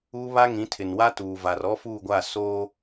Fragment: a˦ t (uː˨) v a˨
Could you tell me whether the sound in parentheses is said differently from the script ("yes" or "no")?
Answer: no